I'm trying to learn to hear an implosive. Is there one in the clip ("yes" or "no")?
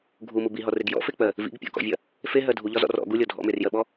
yes